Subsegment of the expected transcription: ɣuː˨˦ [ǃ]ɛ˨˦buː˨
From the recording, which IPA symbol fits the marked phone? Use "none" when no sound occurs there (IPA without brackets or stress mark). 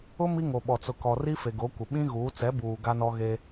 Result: t͡s